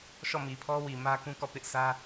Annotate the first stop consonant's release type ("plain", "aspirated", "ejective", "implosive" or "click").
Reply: aspirated